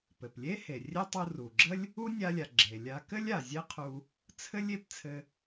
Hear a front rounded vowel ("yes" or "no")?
no